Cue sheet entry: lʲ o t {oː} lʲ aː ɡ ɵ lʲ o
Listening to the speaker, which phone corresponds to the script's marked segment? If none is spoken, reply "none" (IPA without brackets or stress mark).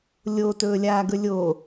ɵː